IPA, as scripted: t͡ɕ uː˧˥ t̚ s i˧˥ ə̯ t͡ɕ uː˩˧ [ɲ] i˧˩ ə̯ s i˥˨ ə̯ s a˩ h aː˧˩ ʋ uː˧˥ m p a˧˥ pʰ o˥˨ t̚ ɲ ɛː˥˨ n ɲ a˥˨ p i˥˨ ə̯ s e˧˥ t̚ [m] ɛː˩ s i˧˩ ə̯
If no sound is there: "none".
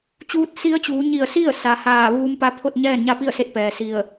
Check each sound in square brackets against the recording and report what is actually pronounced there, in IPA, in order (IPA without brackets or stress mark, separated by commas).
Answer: ɲ, p